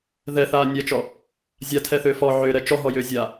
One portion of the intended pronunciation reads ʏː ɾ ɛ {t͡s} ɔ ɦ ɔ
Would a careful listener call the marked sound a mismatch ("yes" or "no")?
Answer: yes